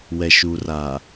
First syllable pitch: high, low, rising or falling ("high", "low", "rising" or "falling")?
low